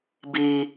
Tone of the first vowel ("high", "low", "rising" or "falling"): low